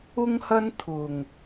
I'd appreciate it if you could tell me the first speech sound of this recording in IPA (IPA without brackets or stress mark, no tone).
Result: ʊ